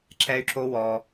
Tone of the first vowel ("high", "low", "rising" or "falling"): high